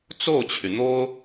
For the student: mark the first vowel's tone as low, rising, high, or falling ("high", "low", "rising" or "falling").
falling